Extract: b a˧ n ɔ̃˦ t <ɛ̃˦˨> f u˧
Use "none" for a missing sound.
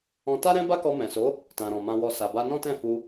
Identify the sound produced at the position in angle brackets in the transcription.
ɛ̃˦˨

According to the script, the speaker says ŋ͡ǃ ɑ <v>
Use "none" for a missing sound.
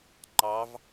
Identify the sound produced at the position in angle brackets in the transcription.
v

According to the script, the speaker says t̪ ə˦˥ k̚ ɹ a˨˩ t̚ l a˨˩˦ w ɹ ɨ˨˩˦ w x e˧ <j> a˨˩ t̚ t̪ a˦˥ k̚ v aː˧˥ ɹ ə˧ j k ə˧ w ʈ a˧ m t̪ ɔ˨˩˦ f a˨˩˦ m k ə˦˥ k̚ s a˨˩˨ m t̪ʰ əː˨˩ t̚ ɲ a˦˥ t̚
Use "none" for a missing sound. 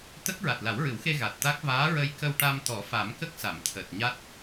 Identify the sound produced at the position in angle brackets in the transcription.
ɣ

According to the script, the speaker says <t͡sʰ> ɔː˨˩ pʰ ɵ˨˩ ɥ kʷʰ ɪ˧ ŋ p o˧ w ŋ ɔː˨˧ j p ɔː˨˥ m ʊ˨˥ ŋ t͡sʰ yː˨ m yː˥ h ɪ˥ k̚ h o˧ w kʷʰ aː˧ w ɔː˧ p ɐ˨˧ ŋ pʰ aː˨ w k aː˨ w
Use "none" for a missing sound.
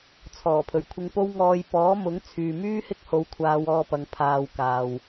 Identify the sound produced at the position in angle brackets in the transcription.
t͡sʰ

